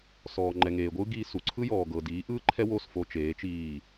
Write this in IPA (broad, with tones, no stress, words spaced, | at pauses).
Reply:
sɔː˨ ŋ͡ǃɛ˨ŋeː˨ɡʷɯː˦ ɡi˧su˨ ǀʰɯ˦jɔː˨ ɡɤ˨diː˨˦ʔɯː˦ ǃʰɛ˦wo˦˨s fo˧t͡ʃeː˨˦t͡ʃiː˦˨